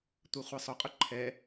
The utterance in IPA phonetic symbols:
tʷ ɛ χʷ ɛ sˤ ʊ qʼ ʊ ǃʰ ɛ

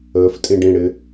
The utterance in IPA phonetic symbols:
əː f tʼ ĩ ɖ ĩ ɽ ɪ

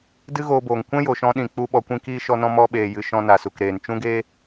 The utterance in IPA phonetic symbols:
d ɨ˦ ɣ oː˧ b oː˨ ŋ kʷ ɛ̃˦ j o˨ ʃ ɔ̃˧ ɗ ĩ˨ k͡p u˧ ɓ ɔ˨ kʷ ĩ˧ k iː˧ ʃ ɔ˧ n ɔ̃˧ m ɔ˧ ɓ eː˨ j ɨ˨ ʃ ɔ̃˧ n a˨ s u˨ k ɾ eː˨ n t͡ʃ ũ˦ ɡ eː˦

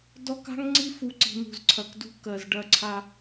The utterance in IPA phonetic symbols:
d ɔ˦ k a̤˦ ŋ ŋ͡ǀ i˦ f u˨ ǀ i̤˨ n̪ ṳ˨ z ǀʰ ɐ˨ k d ṳ˦ k ɜ˨ z ɖ ɐ˦˨ ǀʰ a˦

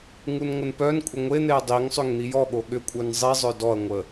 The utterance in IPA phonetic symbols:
ŋ u n ŋʷ ə n p œ n kʷʼ ə ŋʷ e n̪ e ɐ̯ dˤ i ŋ sˤ ʏ ŋ n̪ i j ɔ ɠ o ɠ ʏ kʷʼ œ n zˤ i zˤ œ d ɔ ɐ̯ ŋʷ ə

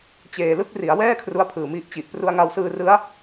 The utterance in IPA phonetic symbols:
t͡ɕ eː˨˩ l ɯ˥˩ k̚ r i˩˦ a̯ w ɛː˥˩ kʰ r u˦˥ a̯ pʰ ɯː˨˩ m i˦˥ ʔ t͡ɕ i˨˩ ʔ p r u˧ a̯ ŋ a˧ w s ɯː˧ r ɯ˦˥ a̯

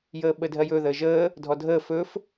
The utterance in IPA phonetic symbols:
j əː ɓ ə dʱ ɜ j ɵ ð əː ʒ əː | dʱ ɔ dʱ əː f ɵː f

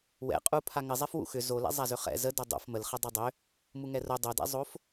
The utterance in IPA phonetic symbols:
w ɛ̰ qʼ u pʰ a ŋ ɘ zˤ ɛ f w ṵ x ʏ z o l ɛ̰ zˤ a z ʏ χ ɛ̰ z ə d o dˤ o̰ f m ə l χ ə dˤ ɘ dˤ ʏ | m u ŋ ɛ r o dˤ o d ɛ̰ zˤ o f

